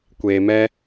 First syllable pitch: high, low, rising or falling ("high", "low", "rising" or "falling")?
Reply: low